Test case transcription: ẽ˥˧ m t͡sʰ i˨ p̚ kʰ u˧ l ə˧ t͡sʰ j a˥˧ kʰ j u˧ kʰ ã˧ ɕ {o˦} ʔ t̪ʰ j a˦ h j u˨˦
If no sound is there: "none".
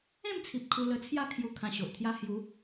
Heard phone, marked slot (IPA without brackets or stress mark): o˨